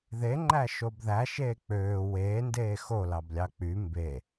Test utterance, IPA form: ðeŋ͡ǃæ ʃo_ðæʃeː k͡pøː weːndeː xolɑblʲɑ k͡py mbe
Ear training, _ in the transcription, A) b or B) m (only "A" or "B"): A